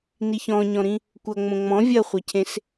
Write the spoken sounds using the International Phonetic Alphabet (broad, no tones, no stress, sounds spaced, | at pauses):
n i ç ɔ̃ ɲ ɔ̃ ɾ ĩ | kʷ ɐ ŋ͡m õ ŋ͡m ɔ̃ vʲ ɐ χʷ ɐ cʰ ẽ s